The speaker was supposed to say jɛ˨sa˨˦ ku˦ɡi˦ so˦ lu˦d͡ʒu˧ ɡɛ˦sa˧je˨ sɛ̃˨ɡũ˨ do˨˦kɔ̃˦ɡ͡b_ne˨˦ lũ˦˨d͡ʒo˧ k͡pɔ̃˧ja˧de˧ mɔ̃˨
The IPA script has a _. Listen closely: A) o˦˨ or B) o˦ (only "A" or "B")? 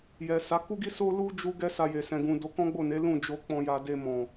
A